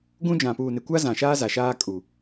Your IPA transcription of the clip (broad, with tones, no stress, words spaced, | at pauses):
ɡũ˦d͡ʒã˨ puː˨nɪ˨kʷa˦ zã˨ʃaː˦ za˨ʃaː˦ kʼu˨